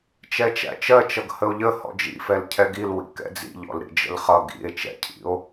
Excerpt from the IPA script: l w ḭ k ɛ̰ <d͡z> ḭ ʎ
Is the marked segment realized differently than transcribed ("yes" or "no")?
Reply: no